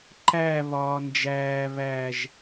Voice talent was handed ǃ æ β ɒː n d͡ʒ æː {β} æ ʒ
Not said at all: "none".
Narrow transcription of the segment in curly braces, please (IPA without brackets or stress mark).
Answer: β